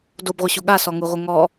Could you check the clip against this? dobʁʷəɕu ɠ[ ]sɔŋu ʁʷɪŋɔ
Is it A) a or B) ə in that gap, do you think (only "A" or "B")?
A